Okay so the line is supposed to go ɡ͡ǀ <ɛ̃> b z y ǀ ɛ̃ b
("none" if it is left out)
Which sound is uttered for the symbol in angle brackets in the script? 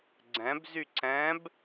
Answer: ɛ̃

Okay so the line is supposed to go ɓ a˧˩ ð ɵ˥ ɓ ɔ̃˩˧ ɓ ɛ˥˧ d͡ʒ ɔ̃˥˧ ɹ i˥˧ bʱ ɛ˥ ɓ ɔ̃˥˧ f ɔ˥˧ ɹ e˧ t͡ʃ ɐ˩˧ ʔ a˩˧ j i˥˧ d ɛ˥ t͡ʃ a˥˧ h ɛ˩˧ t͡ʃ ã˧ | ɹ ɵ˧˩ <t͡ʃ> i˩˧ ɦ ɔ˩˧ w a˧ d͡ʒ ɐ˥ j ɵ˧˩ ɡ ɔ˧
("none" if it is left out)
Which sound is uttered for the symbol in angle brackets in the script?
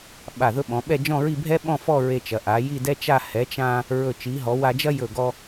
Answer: t͡ʃ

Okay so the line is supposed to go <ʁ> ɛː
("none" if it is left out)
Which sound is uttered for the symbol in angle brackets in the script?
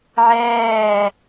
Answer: ʕ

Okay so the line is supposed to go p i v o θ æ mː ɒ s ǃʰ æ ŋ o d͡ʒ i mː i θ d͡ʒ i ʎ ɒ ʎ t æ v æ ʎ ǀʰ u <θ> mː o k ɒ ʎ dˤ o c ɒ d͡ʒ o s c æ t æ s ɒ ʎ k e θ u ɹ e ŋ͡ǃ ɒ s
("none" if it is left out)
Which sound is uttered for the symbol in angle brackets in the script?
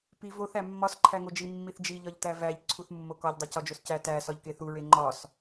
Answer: θ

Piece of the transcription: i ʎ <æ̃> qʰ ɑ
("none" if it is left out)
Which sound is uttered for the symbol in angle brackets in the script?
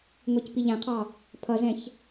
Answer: æ̃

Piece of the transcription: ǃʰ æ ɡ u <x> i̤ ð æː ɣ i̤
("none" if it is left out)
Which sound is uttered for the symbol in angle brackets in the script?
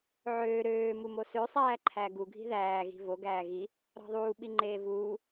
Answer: ɡʱ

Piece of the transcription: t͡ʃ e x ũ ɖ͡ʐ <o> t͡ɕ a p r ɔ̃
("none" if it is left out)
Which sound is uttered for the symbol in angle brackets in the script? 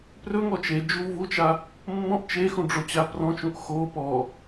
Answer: o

